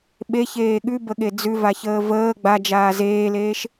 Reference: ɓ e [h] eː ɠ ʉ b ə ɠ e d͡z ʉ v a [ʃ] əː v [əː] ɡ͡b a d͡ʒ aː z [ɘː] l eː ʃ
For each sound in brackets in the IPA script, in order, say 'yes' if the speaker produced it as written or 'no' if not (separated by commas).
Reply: no, no, yes, no